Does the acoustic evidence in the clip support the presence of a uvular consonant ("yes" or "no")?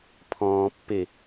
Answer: no